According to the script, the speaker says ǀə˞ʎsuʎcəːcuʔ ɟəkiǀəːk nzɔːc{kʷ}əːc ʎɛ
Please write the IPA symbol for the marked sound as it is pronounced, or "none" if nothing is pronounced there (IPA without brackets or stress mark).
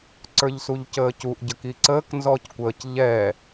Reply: kʷ